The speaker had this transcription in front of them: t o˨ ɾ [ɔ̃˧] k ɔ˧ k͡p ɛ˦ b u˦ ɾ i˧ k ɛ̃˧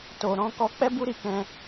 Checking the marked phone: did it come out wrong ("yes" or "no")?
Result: yes